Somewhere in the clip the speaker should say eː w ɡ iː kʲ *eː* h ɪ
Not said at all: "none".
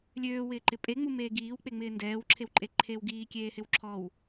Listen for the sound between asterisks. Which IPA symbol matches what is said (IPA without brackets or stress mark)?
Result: eː